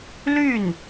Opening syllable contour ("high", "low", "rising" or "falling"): falling